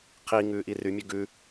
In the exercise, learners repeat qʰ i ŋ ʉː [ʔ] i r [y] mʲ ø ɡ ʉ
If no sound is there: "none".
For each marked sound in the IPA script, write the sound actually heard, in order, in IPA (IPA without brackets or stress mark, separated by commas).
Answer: ʔ, y